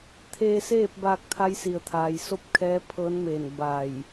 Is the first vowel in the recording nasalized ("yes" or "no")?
no